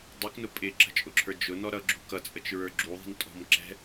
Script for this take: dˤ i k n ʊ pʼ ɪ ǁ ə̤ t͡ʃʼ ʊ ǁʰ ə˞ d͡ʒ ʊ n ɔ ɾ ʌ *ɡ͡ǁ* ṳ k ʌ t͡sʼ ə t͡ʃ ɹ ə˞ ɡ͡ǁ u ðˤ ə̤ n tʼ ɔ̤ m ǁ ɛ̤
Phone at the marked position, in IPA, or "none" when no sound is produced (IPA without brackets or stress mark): ɡ͡ǁ